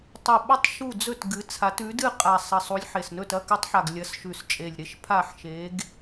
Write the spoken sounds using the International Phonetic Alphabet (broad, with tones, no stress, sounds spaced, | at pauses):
tˤ u˨˩ ɓ ɐ˦˨ tˤ ʃ u˦˨ d͡z ɵ˦˨ t ɡ ɨ˨˦ t͡sʰ a˨˦ t ʉ˨˦ d ɨ˦˨ qʼ a˨˩ sˤ ɐ˨˩ sˤ u˨˦ lʲ ħ e˨˩ s n ɵ˦˨ t ɐ˦˨ k ʉ˨˦ tˤ ħ a˨˩ ɡ lʲ ɐ˨˦ s ʃ ʉ˨˩ s t͡ʃʼ e˨˩ lʲ ɾ e˦˨ ʃ pʰ a˦˨ ħ ʃ e˨˦ ɡ